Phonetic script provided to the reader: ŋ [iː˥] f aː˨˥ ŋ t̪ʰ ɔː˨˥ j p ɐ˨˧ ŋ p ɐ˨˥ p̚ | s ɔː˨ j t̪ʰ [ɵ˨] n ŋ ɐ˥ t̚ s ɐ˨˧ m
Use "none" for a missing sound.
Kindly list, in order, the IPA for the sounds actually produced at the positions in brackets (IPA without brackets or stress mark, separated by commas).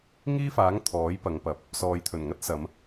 iː˥, ɵ˨˩